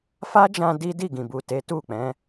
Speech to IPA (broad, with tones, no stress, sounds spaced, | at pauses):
f a˦ d͡ʒ ã˧ d i˦ d i˦˨ ɡ ĩ˨ b u˨ t e˨˦ t u˦˨ k͡p ɛ̃˨˦